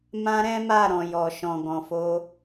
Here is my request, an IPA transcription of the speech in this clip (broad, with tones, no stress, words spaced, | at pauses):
mã˦ɾɛ̃˦ma˦˨ ɾɔ̃˨jɔ˨ʃɔ̃˨ɡɔ̃˨ fo˧